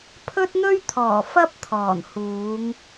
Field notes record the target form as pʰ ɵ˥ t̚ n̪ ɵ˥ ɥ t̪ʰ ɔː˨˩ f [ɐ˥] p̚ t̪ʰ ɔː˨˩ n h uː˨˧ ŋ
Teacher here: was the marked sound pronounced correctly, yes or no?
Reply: yes